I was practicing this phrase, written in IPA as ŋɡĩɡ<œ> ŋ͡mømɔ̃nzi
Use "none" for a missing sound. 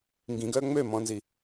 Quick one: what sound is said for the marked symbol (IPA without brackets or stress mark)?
œ